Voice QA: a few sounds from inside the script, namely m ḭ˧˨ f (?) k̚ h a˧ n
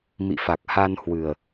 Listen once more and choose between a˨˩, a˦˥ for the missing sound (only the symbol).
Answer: a˨˩